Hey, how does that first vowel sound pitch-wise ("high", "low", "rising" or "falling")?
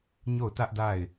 falling